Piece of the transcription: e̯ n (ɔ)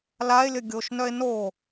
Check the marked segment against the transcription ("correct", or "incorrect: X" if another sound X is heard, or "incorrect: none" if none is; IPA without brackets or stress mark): incorrect: o